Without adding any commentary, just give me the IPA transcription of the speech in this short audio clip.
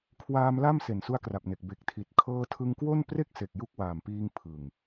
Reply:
kʰ w aː˧ m l a˥˩ m s e˨˩ n s u˦˥ a̯ k r a˨˩ p̚ n e˨˩ k̚ b e˨˩ k̚ tʰ i˨˩ t̚ kʰ ɤː˧ tʰ ɯ˧ ŋ k w o˥˩ n p r e˥˩ k̚ s e˨˩ k̚ j u˦˥ k̚ w aː˨˩ m p iː˧ ŋ pʰ ɯ˨˩ ŋ

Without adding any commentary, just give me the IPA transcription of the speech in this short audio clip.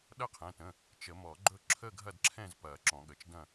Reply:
ɗ ɐ˥˨ qʰ ɛ̃˩˧˩ t ə̃˩˧˩ | t͡ʃ ə˨˩˦ m ɔ˨˩˦ ɡ͡ǃ ɵ˥˨ ǁʰ ə˥˨ ɡʱ ɐ˥˨ d ǁʰ ɛ̃˥˨ z p ɐ˨˩˦ ǁ ɔ̃˨˩˦ ɠ ə˩˧˩ t͡ʃ d ɐ̃˥˨

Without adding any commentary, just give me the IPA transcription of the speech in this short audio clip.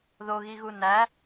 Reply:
ð o ɣ i ɣ u n æ

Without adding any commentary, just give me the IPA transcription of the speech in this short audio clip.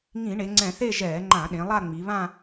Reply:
ŋ ĩ˧˩˧ ɳ e˩˧ ŋ͡ǀ ɛ̃˧˩˧ θ e˥˧ ʒ ɛː˧˩˧ ŋ͡ǃ ã˧˩˧ ɗ ẽ˩˧ lˠ a˥˧ ŋ͡m i˩˧ β ã˥˧

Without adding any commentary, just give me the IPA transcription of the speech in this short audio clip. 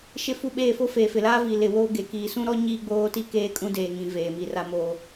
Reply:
ʃ ɪ˦ f u˦ ɓ eː˦˨ f o˦ f eː˨ f ɪ˨ l aː˦ v i˨ l ɪ˨ w oː˦ ɡ e˨ k iː˨ s ũ˦ ɾ ɔ˦ ɲ iː˦ ɡ͡b oː˦ t i˦ k eː˦ kʼ ũ˦ d eː˨ ŋ ĩ˨ v eː˨ m i˨ r a˦ m oː˦

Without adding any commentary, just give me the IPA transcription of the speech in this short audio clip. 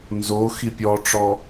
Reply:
n z o x i pʲ ɔ ʈ͡ʂ ɔ

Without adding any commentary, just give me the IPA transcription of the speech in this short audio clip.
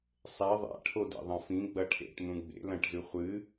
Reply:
sˤ e ðˤ a̰ ʈʰ o d ḛ ðˤ ɐ̃ f ĩ ɡ͡b ɐ ʈʰ ḛ ʈ n̪ ũ ɡ͡b ḛ l ɐ̃ ʈ z ʉ χʷ ɨ

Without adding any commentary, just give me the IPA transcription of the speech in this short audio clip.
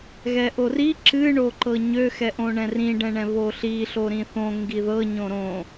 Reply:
ɣ ɛ ʔ o r i ǁ ɨ ɳ o ǃ ɤ ɲ ø x ɛ ʔ õ ɳ ɛ̃ r ĩ ɖ ɛ̃ ɳ ɛ̃ β o ɬ i ɬ o ɾ ĩ θ õ ŋ ɡ i ð ɤ ɲ õ ɾ õ

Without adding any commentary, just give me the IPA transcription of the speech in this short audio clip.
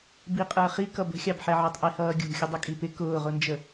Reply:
b i qʼ ə˞ χ i k ʌ b ə̤ xʲ ɑ b ħ ɛ ʕ ə˞ tˤ ʔ i h ʌː ɡʲ ṳ xʲ ʊ dˤ ʌ kʼ i p ɪ k ʊː ʁ ʊ n d͡ʒ ə

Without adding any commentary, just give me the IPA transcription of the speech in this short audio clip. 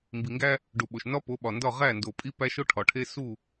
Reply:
m b i˨ ŋ ɡ æ˦ | ɖ u˨ ɓ o˨ ʃ n ɒ˦ p o˨˦ ɓ ɒ˨ n d ɒ˦˨ ʁ æ˦˨ n d o˨ pʼ i˦ p æ˦ ʃ o˦ ʈʰ ɒ˨ ʈʰ e˦ s u˦˨

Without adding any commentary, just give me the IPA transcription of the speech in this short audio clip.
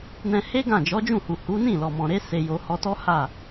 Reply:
n ɛ̃˧ h e˦ ɡ ã˦˨ d͡ʒ ɔ˨˦ d͡ʒ ũ˦˨ h u˨ h u˨˦ n ĩ˦˨ l ɔ˨ m ɔ̃˨ ɾ e˨˦ s e˧ j o˧ h ɔ˧ t ɔ˦ h a˦˨

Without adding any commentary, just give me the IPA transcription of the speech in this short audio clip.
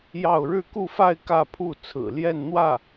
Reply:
j ɑ˥˧ ʊ̯ ɻ ɻ̩˥˧ k u˥˧ f a˥˧ ɪ̯ k ä˥˧ pʰ u˥˩ t͡sʰ ɹ̩˨˩ l j ɛ˥˧ n n̪ w ä˥˩

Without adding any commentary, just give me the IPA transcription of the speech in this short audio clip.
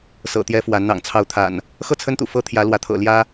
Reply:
s ɤ̰˨˩ t̪ j ɛ˦ f w a˨˦ n n̪ ɑ̰˨˩ ŋ t͡sʰ ɑ˨˦ ʊ̯ t̪ʰ a̰˨˩ n | x ɤ˥˨ t͡sʰ ə˦ n t̪ ṵ˨˩ f ɤ˦ t̪ʰ j ä˨˦ l w ä˨˦ t̪ʰ ɤ̰˨˩ l j ä˦

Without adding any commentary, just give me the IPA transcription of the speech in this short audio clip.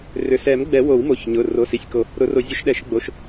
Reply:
r ʏ˩˧˩ s ɛ˨˩˦ m ɡ͡b ɛ˨˩˦ w o˨˩˦ w m o˩˧˩ ç ɲ ʊ˩˧˩ r o˩˧˩ s i˩˧˩ sʲ k o˨˩˦ | ɾ ʊ˨˩˦ r o˨˩˦ zʲ ʊ˨˩˦ ʃ ɗ ɛ˨˩˦ ʃ ɡ͡b o˩˧˩ ʃ

